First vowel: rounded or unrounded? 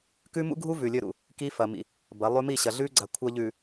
rounded